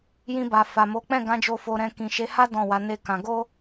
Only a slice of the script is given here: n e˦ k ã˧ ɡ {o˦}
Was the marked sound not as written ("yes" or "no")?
no